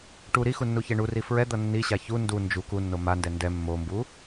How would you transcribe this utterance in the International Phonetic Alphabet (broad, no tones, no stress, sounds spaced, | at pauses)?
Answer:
ʈ u ɾ i x u nː u ç e ɳ u r i f ɹ ɛ d̪ ʌ nː i ɕ a ç u n d u n d͡ʒ u k u nː o m a n d ɛ n d ɛ mː o m b u